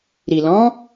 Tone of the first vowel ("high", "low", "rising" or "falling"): low